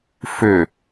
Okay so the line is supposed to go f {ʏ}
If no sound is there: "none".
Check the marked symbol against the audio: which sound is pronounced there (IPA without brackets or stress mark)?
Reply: ʏ